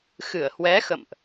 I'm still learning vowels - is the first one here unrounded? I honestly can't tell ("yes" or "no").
yes